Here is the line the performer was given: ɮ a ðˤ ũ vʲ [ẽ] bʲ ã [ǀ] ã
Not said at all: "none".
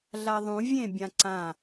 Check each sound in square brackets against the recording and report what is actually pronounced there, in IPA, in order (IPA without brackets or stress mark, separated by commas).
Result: ẽ, ǀ